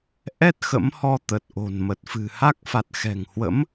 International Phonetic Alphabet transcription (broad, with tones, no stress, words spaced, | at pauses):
ʔɛ˦˥t̚ xə̰˧˥mhɔ˧t̪ə˨˩t̚ ʔo̤˨˩nmə˨˩t̚fɨ̤˨˩ha˦˥k̚ fa˨˩t̚xɛ̤˨˩ŋhwə̰˧˥m